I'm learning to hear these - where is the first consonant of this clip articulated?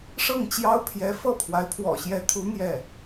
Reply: retroflex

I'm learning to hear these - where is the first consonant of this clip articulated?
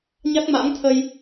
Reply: palate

